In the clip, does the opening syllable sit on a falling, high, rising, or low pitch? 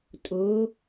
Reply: rising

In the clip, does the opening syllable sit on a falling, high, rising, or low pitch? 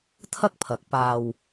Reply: high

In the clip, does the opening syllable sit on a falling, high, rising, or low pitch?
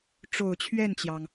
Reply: low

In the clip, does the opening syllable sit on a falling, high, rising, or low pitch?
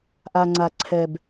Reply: low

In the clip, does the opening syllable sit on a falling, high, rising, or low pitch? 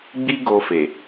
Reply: high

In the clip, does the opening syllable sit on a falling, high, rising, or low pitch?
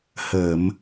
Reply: low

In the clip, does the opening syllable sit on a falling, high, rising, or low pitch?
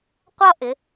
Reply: high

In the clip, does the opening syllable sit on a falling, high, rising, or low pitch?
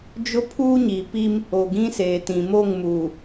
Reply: high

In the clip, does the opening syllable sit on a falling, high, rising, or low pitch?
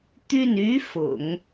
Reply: falling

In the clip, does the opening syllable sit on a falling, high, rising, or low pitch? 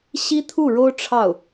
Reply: high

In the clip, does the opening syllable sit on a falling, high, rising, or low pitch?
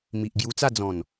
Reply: low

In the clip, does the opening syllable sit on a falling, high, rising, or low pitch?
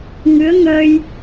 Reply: rising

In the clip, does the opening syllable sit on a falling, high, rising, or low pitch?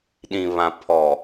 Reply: low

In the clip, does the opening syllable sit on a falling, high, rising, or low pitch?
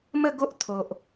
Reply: falling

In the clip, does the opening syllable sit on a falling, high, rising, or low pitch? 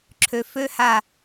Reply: low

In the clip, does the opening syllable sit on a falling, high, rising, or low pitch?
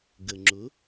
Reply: low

